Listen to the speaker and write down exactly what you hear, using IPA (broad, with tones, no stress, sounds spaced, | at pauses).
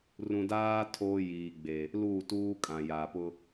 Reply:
r ũ˨ d aː˦ tʰ oː˦ j iː˨ ɡ͡b e˨ | l u˦˨ t uː˦ kʼ ã˨ j a˨ p ʊ˦